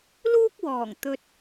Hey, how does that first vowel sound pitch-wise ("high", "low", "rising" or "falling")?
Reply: high